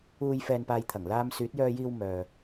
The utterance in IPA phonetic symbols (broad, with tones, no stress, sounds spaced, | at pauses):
uː˨ j f ɛː˨ n p aː˨ j t̪ʰ ɐ˨˩ ŋ l aː˧ m s yː˨˥ t̚ j œː˧ j iː˧ w m œː˨